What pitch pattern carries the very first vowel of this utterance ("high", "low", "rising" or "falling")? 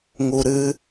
low